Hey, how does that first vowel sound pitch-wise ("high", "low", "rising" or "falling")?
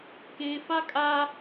high